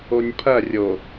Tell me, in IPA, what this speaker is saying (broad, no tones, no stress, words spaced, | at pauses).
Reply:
onʲpʰɐ rʲo